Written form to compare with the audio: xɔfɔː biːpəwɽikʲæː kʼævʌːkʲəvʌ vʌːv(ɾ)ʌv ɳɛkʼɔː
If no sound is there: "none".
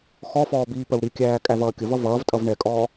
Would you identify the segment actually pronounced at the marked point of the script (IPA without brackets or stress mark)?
tʼ